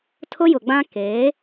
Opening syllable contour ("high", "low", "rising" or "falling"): high